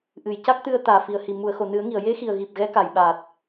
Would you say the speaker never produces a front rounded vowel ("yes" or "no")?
yes